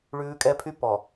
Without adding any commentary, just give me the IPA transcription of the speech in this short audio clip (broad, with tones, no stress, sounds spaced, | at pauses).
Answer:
ɭ ʉː˦ kʼ ɛ˦ pʰ y˦ p ɔ˨